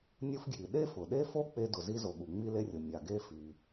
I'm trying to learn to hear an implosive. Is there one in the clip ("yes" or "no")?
yes